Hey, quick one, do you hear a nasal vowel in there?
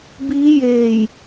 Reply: no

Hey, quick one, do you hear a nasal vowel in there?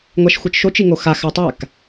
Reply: no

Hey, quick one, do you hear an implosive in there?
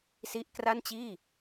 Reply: no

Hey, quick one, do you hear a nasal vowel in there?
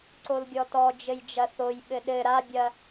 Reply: no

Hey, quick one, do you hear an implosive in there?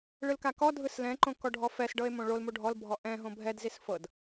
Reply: no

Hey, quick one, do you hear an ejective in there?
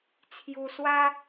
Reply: no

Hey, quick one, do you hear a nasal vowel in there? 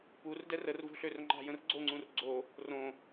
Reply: yes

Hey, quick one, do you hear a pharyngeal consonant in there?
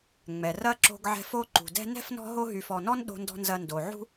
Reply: yes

